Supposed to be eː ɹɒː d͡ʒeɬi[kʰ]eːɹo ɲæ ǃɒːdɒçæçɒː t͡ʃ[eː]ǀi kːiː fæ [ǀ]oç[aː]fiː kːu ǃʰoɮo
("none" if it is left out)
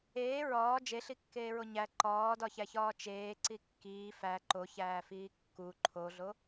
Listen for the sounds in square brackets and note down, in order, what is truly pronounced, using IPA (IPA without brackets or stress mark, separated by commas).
kː, eː, ǃ, æː